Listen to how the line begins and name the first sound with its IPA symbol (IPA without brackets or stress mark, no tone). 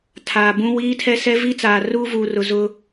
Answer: tʰ